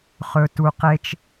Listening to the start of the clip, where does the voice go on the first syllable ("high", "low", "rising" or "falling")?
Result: low